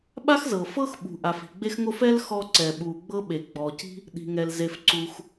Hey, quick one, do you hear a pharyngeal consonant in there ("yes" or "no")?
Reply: no